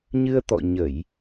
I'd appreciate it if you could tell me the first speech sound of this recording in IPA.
ɲ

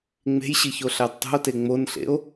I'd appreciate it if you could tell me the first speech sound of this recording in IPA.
ŋ͡m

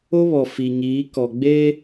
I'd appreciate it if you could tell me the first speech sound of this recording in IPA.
o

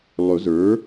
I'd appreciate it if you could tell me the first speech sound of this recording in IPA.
lˠ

